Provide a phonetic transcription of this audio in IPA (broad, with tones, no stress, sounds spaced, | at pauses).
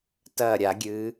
t ɐː˧˩ ɾʲ a˧˩˧ ɡʲ ɨː˩˧